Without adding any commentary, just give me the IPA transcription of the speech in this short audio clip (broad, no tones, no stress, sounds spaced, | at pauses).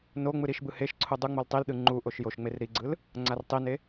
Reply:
n o ŋ͡m ɯ ɾ i ʃ b ɯ h e ʃ ǀʰ u dˤ u ŋ͡m o l tˤ i l ɗ ɯ ŋ͡ǃ u ʔ o ʃ j o ʃ ŋ͡m e r ɾ i ɡ͡ǀ ɯ l | ŋ͡ǀ a r tˤ i n e